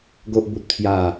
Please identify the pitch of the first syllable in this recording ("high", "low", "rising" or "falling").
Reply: high